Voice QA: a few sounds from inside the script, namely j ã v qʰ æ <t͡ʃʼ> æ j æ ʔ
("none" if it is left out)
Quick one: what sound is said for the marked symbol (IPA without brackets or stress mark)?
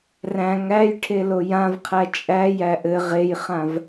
t͡ʃʼ